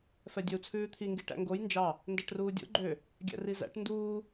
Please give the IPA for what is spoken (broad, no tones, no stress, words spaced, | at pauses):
fɛdʲœu̯t͡sʰʉːt̪ʰi ŋɡiʈæ̰ŋɡoj nd͡ʒɑ | ndæʈruːdʲo̰ ɡ͡ǃø | ɡʲæ̰rizæ̰ʈ nduː